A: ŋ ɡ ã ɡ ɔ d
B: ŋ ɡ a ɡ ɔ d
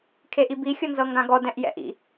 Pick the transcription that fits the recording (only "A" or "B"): A